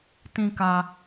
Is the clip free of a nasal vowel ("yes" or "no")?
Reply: no